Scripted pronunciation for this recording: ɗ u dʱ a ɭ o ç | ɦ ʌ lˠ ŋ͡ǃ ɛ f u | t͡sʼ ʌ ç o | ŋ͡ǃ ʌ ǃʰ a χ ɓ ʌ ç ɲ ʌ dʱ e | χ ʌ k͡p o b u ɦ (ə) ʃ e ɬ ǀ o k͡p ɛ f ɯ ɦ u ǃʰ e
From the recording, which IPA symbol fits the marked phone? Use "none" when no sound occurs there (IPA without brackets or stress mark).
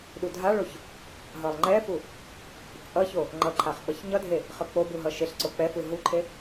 ʌ